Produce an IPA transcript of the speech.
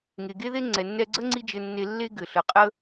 ŋ e˩ ɡ e˥ ð e˥ ŋ͡ǀ ɛ˩ nː ɛ˧ ɡ͡ǀ ə˥ ŋ͡ǀ i˥ d͡ʒ ɘ˧ nː e˧ lː e˥ ɡ ɘ˩ ɬ ə˩ qʼ ə˥

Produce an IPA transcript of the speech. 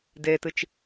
d e t ɨ t͡ʃ

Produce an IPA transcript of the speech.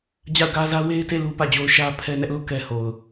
d͡ʑ a˦˨ ʊ̯ ɡ ä˦ z ä˦ w e˦ ɪ̯ t e˦˨ l u˦ p ä˦˨ d͡ʑ o˦ ʊ̯ ʃ ä˦ pʰ ɛ˦ n ɛ˦ ʔ l u˦˨ k ɛ˦ h o˨ ʊ̯

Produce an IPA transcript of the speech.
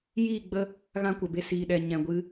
j iː˦˨ ɡ͡b ə˦ | ɣ ã˦ kʷ ə˨ b e˧ s iː˨ ɗ ɛ˨ ɲ ɛ̃˨ ɡʷ ɨ˧

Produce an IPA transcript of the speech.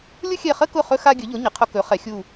lʲ ʊ˥ xʲ ɛ˦˨ χ ə˥ k ʊ˦˨ χ ɵ˥ x a˥ ɡʲ ɵ˩˥ ʎ ʊ˩˥ ɲ ə˩˥ qʰ ʊ˥ k ɵ˩˥ χ ɛ˩˥ xʲ u˦˨

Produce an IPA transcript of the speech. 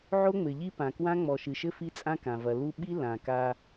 ʕ o˦ ŋ͡m ɘ˨ ʎ i˦ p ã˨ k w ã˦ ŋ͡m ɔ˨ ʃ ɨ˨ ʃ ɘ˦ f i˦ t͡sʼ ã˦ k ã˨ v ɐ˨ l u˦ ɓ i˦ l ã˨ k a˦

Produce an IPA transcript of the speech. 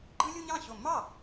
ɡ͡ǃ ɯ˥ lʲ u˥ ɲ ɑ̃˥˩ ɕ o˧˩ mː ɑ˥˩

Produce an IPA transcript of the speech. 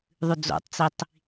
ðˤ ʉ d͡z o̰ tˤ t͡s i tˤ

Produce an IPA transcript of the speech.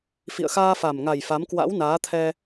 f ḭ˧˨ ə̯ x aː˧ f a˨˩ m ŋ a˨˩ j f a˨˦ m k w a̰˧˥ w n aː˨˦ t̪ʰ ɛ˧

